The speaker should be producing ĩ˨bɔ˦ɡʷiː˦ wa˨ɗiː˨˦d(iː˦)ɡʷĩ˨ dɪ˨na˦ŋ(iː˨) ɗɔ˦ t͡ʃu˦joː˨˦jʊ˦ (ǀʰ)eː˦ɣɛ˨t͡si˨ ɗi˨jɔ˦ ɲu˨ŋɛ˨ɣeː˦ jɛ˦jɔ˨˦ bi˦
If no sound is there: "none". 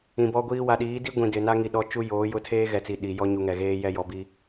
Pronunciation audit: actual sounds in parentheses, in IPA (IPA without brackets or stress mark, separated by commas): i˦, i˨, tʰ